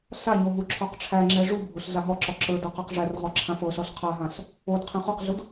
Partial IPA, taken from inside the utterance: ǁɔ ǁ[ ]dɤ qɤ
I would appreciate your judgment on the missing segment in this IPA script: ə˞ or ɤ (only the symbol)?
ə˞